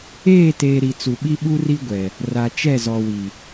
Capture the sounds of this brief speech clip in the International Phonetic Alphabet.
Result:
eː˦˨teː˨ ɾi˨t͡su˨ɓi˦ ɓu˦ri˦ɡʷɛ˨ | ra˨ t͡ʃɛ˦˨zɔ˨wi˨

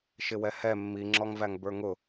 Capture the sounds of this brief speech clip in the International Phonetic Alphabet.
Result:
ʃɪwɛhɛ mːiŋ͡ǁɔŋvæŋ bə˞ŋʊ

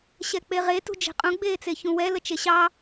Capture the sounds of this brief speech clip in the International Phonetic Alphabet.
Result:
ɕɛk͡peʁe tṳd͡ʒe̤qʼũ ɡ͡beːt͡seçũwɛ lət͡ʃeɕɑ

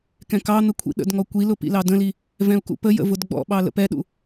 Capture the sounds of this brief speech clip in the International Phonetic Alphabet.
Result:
kɛ̃kɑn̪ə kʷʰḭɗə̰dŋɔ kʷilʊ pḭlɑdə̃li | vɛ̃u̯kṵpəjə̰ vʊdɡ͡bɔ̰ɓɑ lə̰pɛɗṵ

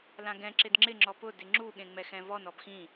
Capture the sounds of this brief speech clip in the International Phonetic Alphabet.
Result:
lãɡɛ̃ ǁɪdŋ͡ǁɪ ŋ͡ǁɔpʊ dɪŋ͡ǁu ɠẽŋ͡mɛxɛ̃vɔn ɔbxĩ

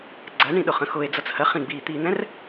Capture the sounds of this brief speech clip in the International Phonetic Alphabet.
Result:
ɡ͡ǀɜɳĩ ɗʊχə̃xʊe̯ d͡zʌt͡shɜχ ĩɡ͡biːt̪iːn̪ɛ̃r

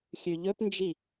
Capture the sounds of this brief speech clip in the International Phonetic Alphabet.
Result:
xʲʉʎɵpnd͡ʒi

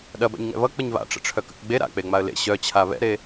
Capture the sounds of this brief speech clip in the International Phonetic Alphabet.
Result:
ɗɐba̰ɲŋɛ̰ βʌ k͡pʌɲβa̰ʈ͡ʂə̰ ʈ͡ʂʰœkə̰kɡ͡be ɾa̰k͡pe ŋ͡maə̯lḛ ɕœt͡ɕʰa βɛ̰ɾe

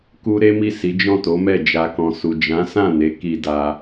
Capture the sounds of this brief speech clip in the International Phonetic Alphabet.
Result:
ku˧ ɾe˦mi˦˨si˨˦ d͡ʒɔ̃˦˨to˨˦mɛ˦˨ d͡ʒa˨kɔ̃˨su˨ d͡ʒã˨˦sã˦˨ne˨˦ ki˧da˧

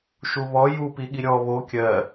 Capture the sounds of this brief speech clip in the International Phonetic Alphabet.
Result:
ʃuβɔ ju piɠiɾʲɔ βo kʲɜ

